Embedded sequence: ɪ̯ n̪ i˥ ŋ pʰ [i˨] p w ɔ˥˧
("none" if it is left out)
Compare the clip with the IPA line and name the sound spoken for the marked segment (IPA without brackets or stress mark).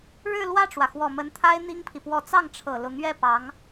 i˨